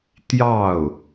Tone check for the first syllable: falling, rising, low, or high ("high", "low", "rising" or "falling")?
falling